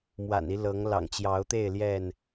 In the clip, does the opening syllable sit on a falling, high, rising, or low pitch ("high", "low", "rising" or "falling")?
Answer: low